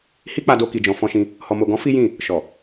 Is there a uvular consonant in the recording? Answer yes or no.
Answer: no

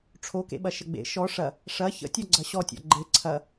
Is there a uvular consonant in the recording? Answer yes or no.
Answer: no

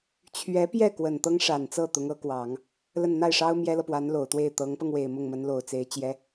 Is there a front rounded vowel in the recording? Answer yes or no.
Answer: no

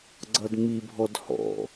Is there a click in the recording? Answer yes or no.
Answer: yes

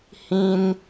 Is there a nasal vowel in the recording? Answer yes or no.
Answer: yes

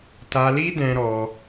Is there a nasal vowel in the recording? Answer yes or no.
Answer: yes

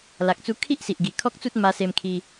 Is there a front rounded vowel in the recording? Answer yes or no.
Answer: no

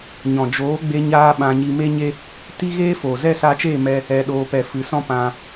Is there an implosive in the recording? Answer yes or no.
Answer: yes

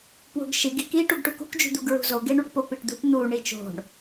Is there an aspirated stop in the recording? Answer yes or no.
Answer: no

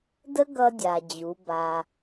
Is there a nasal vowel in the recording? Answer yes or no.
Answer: no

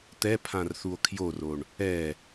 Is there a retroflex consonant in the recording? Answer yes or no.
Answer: yes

